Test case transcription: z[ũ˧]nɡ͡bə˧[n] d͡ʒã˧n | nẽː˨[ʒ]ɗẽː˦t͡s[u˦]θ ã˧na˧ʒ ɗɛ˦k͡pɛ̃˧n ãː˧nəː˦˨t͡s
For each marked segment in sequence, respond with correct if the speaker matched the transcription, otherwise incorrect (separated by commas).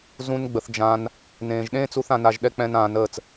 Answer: incorrect, incorrect, correct, incorrect